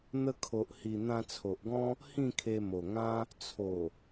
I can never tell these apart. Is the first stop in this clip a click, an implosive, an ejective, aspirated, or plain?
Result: aspirated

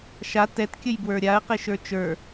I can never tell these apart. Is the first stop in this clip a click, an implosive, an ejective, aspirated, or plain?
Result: plain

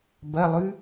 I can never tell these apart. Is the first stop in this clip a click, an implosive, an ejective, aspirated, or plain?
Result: plain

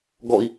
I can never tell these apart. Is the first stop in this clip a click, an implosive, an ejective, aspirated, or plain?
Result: plain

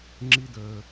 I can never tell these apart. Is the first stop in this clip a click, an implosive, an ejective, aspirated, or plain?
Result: click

